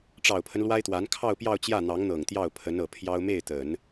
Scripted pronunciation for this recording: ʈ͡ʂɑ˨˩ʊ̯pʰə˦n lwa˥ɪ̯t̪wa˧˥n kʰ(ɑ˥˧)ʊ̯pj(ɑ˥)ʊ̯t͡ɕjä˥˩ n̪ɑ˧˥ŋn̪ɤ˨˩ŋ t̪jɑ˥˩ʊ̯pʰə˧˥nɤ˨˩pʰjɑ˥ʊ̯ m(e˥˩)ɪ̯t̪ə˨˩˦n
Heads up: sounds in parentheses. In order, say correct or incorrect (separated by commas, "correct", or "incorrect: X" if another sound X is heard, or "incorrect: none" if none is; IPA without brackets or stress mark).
correct, incorrect: ɑ˥˧, correct